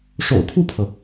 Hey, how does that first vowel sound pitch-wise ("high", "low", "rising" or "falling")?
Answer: low